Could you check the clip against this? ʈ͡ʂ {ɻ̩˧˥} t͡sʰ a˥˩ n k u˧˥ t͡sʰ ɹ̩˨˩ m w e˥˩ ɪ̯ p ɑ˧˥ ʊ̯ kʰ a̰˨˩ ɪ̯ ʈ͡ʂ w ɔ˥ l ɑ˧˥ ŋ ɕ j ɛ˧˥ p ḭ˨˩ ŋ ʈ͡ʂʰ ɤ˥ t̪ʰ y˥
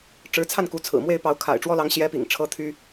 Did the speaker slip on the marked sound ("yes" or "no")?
no